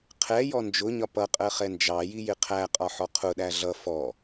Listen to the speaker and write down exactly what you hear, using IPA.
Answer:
qʰɛjɔ nd͡ʒʊɲɒ pʌqʼɜχɛ nd͡ʒɑjijɪ qʰæqʼɒħɔ qʰʊɗæ ɮʌ fɔ

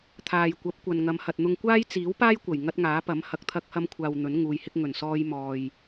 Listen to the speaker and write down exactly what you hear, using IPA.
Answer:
t̪ʰaː˨jkʷɐ˨˥p̚kʷɐ˨nŋɐ˨˧m hɐ˨t̚n̪ʊ˧ŋ kʷaː˥jt͡siː˨˥wpaː˥jkʷɐ˨˩j ŋɐ˥t̚ŋaː˨˥pɐ˨˥m hɐ˨k̚t̪ʰɐ˧k̚hɐ˧mkʷʰaː˨w n̪ɵ˨˥nŋuː˨˧jhɪ˥k̚ ŋɵ˨˩nsɔː˧j mɔː˨j

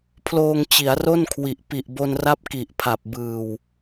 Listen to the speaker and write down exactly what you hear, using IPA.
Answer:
pʰloː˧ŋ t͡ɕi˩˦a̯ro˥˩nkʰwi˨˩ʔ pi˨˩ʔ bo˧nra˦˥p̚ ki˨˩ʔpʰa˨˩p̚ bɯː˨˩w

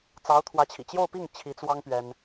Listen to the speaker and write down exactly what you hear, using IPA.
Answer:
t͡sɑ˧˥ʊ̯t̪ʰwä˧˥t͡ɕʰḭ˨˩ t͡ɕjo˥˧ʊ̯pi˥˩ŋ t͡ɕʰi˧˥t͡swɑ˥ŋ pɥɛ˥n

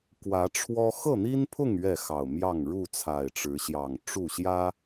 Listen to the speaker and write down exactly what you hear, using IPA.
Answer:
kwä˨˦ʈ͡ʂʰwɔ˦ xɤ˥˨n̪i˦npʰʊ˥˨ŋ ɥɛ˥˨xɑ˨˩ʊ̯mjɑ˥˨ŋ ɻu˥˨t͡sʰa˨˩ɪ̯ʈ͡ʂɻ̩˨˦ɕjɑ˨˩ŋ ʈ͡ʂu˥˨ɕjä˦

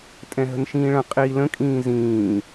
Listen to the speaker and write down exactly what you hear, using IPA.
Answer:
tʼɛ̃ɦə̤nʃĩːɭə̃ qʼi lə̃kʼĩː zĩː

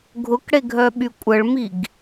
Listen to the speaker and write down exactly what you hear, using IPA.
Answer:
ɡʱʊkɽeɡʱœɓy kʷʼəɭmiɡ

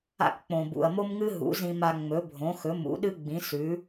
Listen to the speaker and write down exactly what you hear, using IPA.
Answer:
a̰˧kk͡põ˩ bṵ˩ɐ̯mo˥mŋɨ˥ ɦṵ˩˥zĩ˧ma˧ ŋ͡mɵ˩˥bʱõ˩˥xɵ˩˥ mṵ˩˥ɗɨ˥ɡ͡bĩ˩˥ sʉ˩˥

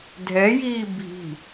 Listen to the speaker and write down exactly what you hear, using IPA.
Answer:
dʱɛjiː bʱi̤

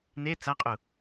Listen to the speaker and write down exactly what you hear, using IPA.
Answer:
ne t͡saqʼu

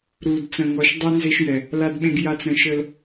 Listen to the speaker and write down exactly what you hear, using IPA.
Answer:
ɾu˨d t͡sə̃˨ŋɔ˨ʃ dˤʉ˦nze˦ʃjɛ˨ | la˦dɓẽ˦ɡja˦˨t͡sɾə̃˦˨ ʃə˦l

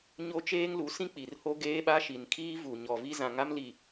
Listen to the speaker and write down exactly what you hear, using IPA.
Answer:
ɲo˦t͡ʃeː˦ŋ lu˨˦sĩ˦ k͡pi˨rho˦ ɡeː˦ɓa˦ʃi˨n kʰiː˦vu˨ ɲɔ˨vi˦zã˨ ŋa˦mli˨

